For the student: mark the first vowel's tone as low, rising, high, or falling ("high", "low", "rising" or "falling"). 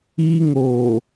high